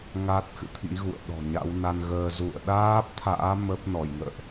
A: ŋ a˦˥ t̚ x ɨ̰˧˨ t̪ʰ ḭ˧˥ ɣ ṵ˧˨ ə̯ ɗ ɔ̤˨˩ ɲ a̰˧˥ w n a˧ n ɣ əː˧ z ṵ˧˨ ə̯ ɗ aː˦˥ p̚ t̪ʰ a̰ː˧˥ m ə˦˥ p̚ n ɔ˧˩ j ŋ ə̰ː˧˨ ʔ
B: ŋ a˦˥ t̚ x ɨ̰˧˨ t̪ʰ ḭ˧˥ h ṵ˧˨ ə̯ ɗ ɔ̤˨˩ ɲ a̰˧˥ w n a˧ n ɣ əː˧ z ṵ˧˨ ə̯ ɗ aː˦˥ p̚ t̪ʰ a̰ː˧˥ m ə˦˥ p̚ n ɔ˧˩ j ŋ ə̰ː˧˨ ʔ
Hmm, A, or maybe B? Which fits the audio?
A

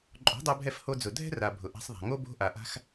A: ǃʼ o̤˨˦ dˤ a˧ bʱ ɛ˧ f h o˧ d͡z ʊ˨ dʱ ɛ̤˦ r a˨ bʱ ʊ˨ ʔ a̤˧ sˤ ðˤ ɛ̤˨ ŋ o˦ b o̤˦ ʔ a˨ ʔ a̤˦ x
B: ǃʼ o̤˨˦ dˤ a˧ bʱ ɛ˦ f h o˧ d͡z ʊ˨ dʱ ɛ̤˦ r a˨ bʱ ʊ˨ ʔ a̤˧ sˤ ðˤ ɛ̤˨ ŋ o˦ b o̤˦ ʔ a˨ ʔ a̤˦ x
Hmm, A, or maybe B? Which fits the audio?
A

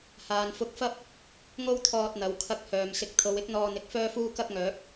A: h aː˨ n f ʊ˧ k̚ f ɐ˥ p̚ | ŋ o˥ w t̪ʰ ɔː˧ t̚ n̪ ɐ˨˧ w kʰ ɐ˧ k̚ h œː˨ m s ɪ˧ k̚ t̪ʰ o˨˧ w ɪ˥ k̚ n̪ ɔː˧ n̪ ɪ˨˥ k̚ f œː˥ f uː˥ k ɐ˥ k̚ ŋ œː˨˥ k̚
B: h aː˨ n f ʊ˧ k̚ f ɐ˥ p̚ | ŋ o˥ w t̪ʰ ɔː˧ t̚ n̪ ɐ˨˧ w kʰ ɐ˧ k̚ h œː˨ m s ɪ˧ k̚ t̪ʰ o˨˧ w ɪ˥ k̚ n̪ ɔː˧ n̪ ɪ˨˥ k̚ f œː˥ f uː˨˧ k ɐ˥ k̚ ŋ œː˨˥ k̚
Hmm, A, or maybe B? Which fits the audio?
A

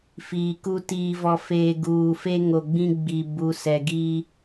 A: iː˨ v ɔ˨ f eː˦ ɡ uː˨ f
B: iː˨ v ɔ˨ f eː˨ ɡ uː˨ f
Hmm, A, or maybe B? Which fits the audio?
B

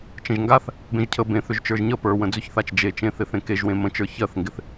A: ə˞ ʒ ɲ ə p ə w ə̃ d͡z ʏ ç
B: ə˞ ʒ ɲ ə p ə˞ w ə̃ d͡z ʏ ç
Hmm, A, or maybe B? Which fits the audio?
B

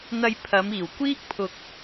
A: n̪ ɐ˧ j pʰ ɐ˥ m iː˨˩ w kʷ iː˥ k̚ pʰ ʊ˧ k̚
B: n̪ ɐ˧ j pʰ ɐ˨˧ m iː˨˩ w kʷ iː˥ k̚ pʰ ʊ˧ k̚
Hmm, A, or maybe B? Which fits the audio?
B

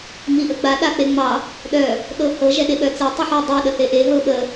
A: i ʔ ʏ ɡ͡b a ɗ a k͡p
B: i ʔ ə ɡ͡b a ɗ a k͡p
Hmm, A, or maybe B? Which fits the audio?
B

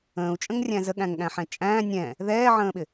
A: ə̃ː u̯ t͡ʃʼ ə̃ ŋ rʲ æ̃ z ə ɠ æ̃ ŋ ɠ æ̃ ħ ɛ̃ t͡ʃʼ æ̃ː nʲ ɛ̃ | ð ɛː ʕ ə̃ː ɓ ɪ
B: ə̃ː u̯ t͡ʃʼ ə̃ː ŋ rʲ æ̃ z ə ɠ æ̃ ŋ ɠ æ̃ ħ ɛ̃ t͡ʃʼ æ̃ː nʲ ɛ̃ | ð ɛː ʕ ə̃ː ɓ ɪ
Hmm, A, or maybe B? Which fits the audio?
A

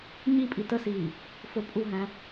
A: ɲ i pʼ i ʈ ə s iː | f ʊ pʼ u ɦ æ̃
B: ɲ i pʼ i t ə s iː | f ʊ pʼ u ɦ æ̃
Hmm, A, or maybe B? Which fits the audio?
B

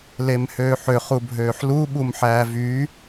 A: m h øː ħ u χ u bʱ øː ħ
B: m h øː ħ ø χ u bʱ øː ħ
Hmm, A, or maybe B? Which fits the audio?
B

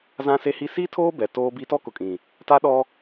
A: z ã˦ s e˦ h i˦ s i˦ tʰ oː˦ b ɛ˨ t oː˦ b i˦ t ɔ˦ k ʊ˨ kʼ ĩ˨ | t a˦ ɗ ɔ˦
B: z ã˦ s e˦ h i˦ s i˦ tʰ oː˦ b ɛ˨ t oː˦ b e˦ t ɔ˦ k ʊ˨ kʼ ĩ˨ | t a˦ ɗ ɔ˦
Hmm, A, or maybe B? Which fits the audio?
A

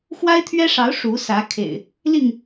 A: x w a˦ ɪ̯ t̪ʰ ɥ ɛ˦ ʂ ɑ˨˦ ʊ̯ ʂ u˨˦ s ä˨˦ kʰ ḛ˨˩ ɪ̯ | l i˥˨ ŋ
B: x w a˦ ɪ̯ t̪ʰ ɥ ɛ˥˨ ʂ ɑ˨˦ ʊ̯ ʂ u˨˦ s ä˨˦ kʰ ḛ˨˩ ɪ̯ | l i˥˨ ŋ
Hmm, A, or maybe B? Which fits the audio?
A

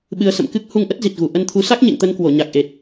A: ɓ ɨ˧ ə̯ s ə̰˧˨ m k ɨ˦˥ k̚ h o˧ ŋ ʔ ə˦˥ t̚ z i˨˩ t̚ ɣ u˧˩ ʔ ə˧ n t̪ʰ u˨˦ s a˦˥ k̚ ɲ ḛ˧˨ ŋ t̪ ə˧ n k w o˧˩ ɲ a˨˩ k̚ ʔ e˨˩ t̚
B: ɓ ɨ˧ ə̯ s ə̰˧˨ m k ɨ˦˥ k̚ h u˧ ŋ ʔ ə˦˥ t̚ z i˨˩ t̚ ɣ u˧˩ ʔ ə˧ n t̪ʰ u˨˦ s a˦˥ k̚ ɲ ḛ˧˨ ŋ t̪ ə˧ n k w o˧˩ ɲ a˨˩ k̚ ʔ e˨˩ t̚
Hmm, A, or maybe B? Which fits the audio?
B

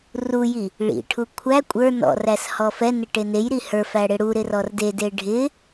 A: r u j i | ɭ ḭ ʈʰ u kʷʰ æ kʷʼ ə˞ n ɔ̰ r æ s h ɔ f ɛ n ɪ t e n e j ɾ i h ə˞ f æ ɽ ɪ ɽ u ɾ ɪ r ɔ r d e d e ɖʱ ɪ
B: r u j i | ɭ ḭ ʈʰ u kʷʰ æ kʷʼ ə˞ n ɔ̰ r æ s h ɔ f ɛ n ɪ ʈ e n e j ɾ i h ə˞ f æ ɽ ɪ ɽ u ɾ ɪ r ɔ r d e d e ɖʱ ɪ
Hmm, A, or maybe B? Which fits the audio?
B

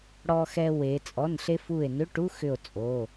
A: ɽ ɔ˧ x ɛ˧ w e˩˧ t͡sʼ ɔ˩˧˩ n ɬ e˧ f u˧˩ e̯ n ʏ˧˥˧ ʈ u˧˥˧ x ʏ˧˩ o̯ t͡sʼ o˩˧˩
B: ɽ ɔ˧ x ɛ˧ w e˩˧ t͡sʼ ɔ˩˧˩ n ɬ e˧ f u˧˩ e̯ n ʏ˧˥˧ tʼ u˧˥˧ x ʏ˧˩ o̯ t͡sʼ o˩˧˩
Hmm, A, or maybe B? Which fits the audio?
A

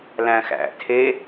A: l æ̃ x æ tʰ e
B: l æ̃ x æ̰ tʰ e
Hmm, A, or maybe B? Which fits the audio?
B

